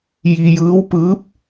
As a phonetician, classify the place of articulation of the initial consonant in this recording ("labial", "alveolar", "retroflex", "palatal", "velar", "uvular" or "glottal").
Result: palatal